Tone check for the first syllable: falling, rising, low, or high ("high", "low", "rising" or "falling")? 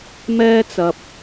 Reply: high